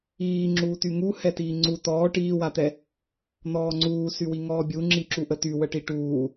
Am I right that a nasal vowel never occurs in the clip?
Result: yes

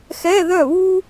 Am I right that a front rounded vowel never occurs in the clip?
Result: no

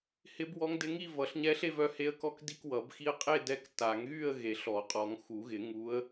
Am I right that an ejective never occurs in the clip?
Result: no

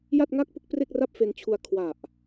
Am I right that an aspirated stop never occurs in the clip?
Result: no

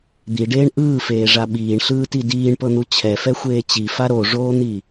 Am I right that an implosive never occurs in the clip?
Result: no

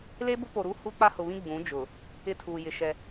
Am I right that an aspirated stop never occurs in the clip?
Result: no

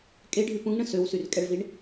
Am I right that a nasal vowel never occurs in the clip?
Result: no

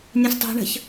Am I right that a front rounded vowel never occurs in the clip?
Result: yes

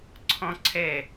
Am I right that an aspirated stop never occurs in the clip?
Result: no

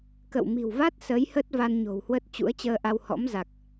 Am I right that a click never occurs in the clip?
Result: yes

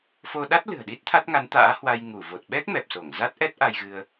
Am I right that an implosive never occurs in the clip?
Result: no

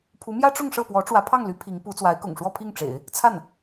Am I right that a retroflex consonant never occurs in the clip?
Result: no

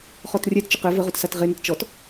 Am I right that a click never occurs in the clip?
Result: yes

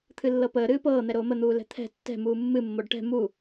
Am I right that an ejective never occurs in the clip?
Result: yes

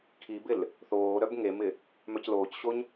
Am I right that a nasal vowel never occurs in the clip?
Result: yes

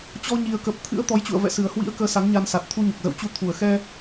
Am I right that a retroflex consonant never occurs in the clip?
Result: yes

